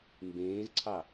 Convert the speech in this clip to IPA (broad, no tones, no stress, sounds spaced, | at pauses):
m b ẽː z ǀʰ ɑ